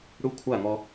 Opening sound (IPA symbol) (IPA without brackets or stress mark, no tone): ɽ